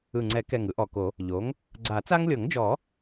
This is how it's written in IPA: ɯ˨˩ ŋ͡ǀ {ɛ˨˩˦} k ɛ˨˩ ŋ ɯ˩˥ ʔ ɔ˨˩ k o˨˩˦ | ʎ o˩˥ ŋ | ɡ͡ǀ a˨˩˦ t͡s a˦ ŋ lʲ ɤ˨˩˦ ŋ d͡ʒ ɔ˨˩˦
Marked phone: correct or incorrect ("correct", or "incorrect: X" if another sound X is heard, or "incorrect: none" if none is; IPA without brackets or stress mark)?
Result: correct